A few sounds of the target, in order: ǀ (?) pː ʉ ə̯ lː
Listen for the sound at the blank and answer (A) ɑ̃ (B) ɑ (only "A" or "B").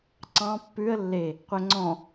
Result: A